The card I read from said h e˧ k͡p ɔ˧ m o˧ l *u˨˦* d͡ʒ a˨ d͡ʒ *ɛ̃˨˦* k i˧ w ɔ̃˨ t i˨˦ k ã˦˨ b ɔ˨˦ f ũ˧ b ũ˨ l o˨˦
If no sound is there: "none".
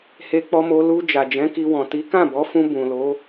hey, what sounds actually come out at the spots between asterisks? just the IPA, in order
u˧, ɛ̃˨˦

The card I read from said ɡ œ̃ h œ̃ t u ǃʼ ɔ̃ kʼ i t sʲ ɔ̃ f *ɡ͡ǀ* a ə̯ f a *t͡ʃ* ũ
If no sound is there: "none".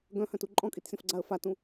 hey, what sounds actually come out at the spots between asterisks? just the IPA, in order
ɡ͡ǀ, t

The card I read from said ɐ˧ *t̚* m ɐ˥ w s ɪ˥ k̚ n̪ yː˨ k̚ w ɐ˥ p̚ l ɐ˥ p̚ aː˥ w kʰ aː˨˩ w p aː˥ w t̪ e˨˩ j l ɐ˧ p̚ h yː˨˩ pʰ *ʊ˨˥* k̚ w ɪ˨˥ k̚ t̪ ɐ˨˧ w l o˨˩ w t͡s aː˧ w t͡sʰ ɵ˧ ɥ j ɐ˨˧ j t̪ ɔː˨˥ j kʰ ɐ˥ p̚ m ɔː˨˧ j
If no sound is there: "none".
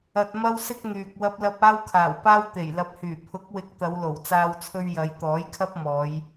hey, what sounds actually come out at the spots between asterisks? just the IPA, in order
t̚, ʊ˨˥

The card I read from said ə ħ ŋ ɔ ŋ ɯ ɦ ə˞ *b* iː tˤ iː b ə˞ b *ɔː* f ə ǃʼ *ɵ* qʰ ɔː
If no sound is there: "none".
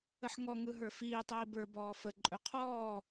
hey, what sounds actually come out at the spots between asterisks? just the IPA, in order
f, ɔː, ɵ

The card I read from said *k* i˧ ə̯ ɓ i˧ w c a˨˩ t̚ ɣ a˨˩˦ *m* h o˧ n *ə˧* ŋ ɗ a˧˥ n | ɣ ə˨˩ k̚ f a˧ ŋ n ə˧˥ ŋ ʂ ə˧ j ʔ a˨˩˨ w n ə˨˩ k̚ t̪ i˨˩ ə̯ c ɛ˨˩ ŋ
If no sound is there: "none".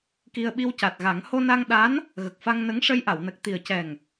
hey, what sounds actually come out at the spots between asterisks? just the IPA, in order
k, ŋ, a˧

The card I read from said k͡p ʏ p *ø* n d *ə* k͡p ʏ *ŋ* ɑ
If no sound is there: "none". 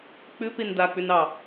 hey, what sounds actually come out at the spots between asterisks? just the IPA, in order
e, a, n

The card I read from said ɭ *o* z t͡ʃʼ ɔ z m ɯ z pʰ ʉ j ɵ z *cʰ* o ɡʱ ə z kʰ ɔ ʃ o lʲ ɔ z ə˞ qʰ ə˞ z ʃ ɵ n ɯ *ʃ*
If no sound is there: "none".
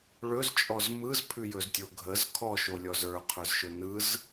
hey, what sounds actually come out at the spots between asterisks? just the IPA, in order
ɵ, tʲ, z

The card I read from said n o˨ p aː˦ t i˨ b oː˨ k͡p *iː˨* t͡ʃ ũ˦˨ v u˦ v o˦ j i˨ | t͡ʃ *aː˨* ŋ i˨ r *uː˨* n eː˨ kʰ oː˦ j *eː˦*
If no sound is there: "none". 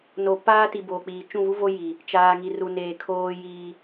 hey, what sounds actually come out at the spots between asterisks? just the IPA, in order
iː˨, aː˨, u˨, iː˦

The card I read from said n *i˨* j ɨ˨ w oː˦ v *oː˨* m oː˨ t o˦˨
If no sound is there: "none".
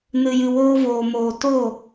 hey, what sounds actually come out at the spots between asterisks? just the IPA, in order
ɨ˨, oː˨

